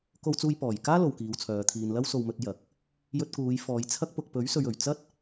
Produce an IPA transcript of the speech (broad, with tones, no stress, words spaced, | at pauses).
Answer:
ko˧wt͡suː˧jpɔː˨˩jkaː˥ lo˨wkiː˨˧wt͡sʰœː˨˧ t̪ʰiː˨nlɐ˥wso˧w mɵ˧t̚ jɐ˨k̚ | jɵ˧t̚kuː˨˧jfɔː˨˧j t͡sʰɐ˥k̚pʊ˧k̚ pɵ˨˥ɥsɵ˨ɥɵ˨˩ɥ t͡sɐ˥t̚